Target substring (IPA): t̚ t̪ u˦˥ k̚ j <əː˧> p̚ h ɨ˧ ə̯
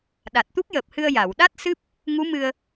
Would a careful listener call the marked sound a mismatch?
yes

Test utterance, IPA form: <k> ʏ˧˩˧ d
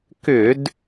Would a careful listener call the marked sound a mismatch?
no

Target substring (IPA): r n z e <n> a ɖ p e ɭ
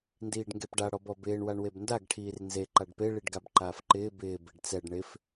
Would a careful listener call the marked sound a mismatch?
yes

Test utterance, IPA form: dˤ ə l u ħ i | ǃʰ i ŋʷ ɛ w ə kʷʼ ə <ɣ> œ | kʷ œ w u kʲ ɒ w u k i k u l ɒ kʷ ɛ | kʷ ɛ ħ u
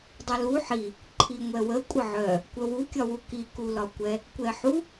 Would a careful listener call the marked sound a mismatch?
yes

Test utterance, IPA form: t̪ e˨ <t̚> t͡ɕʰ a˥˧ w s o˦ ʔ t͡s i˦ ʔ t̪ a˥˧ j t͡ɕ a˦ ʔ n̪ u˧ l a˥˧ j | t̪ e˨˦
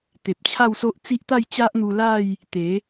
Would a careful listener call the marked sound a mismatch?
yes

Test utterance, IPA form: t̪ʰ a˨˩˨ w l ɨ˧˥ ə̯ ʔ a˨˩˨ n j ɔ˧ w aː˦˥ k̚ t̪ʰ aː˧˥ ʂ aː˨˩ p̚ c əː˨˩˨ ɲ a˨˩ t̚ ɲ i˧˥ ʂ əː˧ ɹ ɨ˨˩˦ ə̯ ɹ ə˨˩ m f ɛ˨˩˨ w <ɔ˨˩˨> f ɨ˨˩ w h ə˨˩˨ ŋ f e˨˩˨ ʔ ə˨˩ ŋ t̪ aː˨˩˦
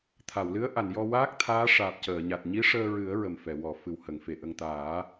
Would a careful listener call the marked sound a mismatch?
no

